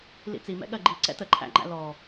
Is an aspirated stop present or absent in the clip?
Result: present